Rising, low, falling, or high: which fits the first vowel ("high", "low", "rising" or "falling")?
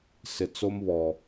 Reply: low